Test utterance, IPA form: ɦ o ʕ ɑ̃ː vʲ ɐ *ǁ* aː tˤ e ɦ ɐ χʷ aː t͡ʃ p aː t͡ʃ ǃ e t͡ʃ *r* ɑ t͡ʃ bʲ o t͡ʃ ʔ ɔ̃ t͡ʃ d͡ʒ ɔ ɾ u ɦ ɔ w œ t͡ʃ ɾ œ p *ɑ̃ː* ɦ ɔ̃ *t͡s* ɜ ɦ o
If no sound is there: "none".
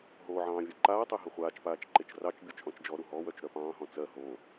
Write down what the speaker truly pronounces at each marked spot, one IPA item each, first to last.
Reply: ǃ, r, ɑ̃ː, t͡s

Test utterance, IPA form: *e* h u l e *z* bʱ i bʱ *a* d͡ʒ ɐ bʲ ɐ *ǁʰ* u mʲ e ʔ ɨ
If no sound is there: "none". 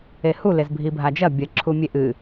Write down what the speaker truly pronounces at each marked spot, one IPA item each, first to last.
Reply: e, z, a, ǁʰ

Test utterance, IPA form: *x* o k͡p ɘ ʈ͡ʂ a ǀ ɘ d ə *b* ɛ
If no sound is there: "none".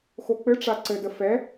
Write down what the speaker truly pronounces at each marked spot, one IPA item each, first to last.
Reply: x, f

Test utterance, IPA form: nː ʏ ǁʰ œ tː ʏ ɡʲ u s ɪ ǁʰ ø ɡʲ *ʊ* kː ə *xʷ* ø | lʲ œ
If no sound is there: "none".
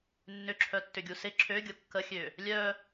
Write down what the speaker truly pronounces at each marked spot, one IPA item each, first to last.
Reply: ʊ, xʲ

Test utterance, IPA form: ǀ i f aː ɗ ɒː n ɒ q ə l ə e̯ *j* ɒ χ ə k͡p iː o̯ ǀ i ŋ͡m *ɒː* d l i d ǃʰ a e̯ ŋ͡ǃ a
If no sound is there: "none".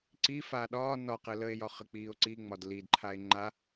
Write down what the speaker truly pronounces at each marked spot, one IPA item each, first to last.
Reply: j, ɒ

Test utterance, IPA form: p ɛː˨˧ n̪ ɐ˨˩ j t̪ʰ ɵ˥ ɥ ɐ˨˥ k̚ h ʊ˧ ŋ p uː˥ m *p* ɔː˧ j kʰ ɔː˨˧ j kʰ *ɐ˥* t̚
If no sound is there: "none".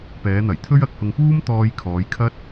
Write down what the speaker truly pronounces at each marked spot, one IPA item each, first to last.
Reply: t̪, ɐ˥

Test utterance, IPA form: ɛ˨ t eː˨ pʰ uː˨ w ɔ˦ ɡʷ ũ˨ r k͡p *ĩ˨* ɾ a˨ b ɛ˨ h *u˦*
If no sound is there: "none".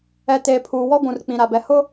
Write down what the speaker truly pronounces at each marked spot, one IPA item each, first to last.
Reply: ĩ˨, ʊ˦

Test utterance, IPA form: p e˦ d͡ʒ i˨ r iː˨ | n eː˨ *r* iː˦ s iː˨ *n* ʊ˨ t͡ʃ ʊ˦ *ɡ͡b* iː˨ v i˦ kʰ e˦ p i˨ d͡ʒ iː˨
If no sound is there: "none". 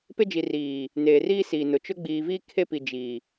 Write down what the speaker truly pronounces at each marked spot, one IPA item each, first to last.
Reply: r, n, ɡ͡b

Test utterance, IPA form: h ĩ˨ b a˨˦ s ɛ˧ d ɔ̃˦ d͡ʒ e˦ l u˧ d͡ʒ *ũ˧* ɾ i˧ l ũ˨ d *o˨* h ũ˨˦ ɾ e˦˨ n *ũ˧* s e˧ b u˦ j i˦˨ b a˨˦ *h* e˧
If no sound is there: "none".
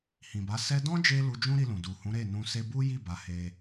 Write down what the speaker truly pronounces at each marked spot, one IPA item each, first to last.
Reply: ũ˦, u˨, ũ˧, h

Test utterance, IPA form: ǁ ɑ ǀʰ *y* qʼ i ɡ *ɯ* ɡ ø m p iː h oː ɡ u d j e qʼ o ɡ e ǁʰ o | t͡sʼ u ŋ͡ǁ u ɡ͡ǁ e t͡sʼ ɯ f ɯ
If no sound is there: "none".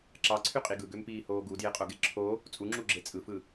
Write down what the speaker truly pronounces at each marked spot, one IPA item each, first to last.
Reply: y, ɯ

